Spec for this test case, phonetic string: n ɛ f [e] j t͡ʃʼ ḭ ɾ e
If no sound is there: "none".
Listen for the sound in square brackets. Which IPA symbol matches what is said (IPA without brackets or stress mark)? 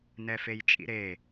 e